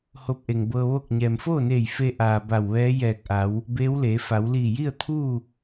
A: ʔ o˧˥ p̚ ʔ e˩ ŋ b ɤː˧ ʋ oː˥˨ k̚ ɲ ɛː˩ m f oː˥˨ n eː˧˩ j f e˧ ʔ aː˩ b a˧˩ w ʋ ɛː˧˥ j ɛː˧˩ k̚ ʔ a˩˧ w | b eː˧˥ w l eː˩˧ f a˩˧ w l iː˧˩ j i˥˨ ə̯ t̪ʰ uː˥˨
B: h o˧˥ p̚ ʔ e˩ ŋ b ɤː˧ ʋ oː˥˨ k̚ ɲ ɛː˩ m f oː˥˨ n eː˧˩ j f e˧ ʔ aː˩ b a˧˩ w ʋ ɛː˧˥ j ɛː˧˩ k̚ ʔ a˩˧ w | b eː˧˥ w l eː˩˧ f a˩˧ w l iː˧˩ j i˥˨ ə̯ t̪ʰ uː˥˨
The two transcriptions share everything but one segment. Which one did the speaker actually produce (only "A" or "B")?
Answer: B